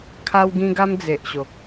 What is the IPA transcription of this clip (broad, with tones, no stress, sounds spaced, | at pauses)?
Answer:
kʰ a˦ w ɡ ĩ˦ ɡ a˦ m d͡z e˨ ʔ ɕ o˨ k̚